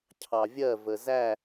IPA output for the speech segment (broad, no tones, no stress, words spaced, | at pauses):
cʰɑvʲɜ vəzæ